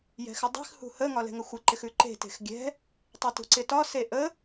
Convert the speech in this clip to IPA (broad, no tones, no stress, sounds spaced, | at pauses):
j ɛ̤ x ɪ dˤ e̤ x h ṳ h ə ŋ ɒ l ɛ̤ ŋ ə xʷ ɪ ǃ ɪ x ʉ ǃ e̤ t e̤ x ɡʲ ɛ̤ | tˤ e t ṳ ǀ ɪ t ɒ s e ʔ ə